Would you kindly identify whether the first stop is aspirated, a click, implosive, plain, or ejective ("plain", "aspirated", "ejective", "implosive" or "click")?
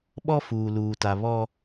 implosive